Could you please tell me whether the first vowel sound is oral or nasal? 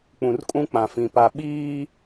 nasal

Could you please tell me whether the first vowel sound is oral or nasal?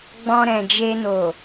nasal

